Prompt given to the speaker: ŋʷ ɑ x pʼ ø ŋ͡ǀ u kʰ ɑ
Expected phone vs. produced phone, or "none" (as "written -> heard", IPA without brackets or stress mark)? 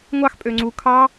none